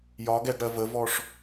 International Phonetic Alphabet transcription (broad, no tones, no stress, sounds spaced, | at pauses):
j ɒ ɡ ɛ ɡ ɽ ɜ v ə v ɔ ʂ